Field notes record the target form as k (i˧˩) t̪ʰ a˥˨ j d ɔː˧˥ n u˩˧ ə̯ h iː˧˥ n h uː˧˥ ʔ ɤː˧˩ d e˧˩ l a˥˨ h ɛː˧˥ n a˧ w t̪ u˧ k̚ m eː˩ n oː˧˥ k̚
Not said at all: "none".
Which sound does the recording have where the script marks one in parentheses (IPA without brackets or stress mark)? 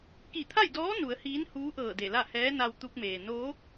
i˧˩